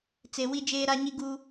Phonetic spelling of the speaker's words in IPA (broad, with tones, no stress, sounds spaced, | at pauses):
t͡s e˨ w i˦ d͡ʒ eː˦ ɾ a˦ ɲ i˦ ɡ uː˦